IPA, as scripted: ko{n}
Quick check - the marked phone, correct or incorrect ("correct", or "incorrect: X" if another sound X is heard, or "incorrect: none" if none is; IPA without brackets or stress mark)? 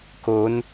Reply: correct